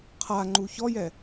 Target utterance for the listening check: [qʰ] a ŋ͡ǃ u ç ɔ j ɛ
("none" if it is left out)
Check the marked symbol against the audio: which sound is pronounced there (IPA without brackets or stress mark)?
qʰ